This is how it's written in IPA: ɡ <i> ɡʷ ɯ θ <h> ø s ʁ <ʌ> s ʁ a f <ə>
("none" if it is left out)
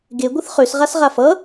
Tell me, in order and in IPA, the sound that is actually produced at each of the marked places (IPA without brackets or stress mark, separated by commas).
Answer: e, χ, a, ʌ